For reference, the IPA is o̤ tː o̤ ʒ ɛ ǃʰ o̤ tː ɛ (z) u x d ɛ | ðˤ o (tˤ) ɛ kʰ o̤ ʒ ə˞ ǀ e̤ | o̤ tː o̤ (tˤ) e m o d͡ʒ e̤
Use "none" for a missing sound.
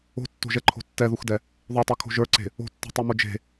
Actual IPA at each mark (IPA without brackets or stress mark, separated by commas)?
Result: ð, tˤ, tˤ